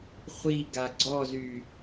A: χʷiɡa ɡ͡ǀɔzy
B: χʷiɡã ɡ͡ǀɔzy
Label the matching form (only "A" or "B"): A